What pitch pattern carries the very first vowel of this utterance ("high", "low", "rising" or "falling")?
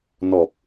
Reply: low